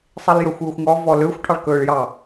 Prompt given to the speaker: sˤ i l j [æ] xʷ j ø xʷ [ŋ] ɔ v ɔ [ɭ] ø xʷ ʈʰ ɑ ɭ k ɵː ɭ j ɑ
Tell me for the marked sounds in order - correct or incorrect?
incorrect: œ, correct, incorrect: l

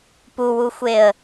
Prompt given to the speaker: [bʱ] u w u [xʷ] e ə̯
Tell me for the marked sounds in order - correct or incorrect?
incorrect: p, correct

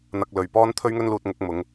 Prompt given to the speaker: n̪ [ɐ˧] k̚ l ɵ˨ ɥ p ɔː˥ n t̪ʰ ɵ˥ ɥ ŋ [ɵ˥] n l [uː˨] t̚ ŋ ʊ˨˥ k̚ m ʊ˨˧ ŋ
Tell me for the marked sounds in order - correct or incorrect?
correct, correct, incorrect: uː˧

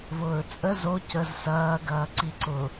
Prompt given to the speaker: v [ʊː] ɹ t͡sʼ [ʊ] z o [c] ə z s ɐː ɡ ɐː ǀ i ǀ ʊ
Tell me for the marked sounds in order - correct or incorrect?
correct, incorrect: ə, correct

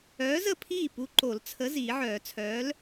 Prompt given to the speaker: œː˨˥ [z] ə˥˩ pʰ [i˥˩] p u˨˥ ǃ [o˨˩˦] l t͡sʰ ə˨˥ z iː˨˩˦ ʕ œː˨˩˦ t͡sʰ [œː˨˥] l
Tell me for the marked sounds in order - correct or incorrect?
correct, incorrect: iː˥˩, correct, correct

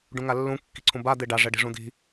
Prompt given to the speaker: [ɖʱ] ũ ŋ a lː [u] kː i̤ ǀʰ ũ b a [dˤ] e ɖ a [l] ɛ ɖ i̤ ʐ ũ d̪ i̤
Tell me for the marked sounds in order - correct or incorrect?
incorrect: ɖ, incorrect: ũ, incorrect: d̪, incorrect: ʐ

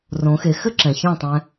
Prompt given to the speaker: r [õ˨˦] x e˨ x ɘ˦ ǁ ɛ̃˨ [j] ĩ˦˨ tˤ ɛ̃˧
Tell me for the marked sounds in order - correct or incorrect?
correct, incorrect: ç

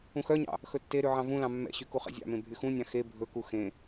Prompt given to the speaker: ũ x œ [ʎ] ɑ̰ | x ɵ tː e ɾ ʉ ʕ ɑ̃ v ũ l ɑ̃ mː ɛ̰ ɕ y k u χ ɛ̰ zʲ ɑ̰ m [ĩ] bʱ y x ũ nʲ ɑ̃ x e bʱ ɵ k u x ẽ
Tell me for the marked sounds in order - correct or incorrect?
incorrect: ɲ, incorrect: ẽ

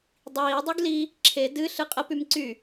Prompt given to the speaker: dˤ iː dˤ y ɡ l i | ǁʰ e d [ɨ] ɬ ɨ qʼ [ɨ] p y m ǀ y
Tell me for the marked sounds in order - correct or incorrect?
correct, incorrect: ə

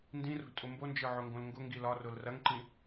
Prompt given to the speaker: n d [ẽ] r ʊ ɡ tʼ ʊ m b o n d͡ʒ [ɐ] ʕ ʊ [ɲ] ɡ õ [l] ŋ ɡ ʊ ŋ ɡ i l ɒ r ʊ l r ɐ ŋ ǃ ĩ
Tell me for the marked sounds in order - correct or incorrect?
incorrect: ĩ, incorrect: ə˞, incorrect: ŋ, correct

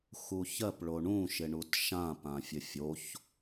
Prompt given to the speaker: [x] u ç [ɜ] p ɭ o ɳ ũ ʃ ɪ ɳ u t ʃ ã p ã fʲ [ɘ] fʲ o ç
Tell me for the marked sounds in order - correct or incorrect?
correct, correct, correct

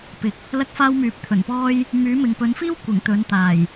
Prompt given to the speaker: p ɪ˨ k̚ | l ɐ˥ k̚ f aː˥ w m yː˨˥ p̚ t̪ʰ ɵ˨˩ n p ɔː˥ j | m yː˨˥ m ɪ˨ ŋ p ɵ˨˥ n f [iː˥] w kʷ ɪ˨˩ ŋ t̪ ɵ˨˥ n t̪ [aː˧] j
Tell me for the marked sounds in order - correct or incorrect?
correct, incorrect: aː˨˩

